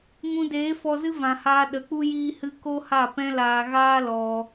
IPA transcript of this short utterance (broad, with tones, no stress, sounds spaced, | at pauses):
ŋ ũ˧ d eː˨˦ f ɔ˧ z ɨ˦ v ã˨ h aː˧ ɗ ə˨˦ k͡p u˦ j iː˦ h ɨ˦ k o˦ h a˦˨ p ɛ̃˦ l aː˧ ɣ aː˦ l ɔ˧